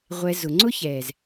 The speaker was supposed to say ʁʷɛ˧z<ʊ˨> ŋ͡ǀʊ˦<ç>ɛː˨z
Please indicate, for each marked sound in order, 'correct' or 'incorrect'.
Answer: correct, correct

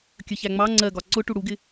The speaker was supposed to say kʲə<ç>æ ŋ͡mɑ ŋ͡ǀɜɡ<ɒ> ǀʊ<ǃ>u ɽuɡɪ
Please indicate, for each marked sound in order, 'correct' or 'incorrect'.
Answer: correct, correct, incorrect: ʈ

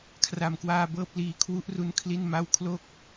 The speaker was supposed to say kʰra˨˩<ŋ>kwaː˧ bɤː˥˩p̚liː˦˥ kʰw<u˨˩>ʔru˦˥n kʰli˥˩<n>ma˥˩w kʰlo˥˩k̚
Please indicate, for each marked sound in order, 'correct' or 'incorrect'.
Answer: incorrect: m, incorrect: u˦˥, correct

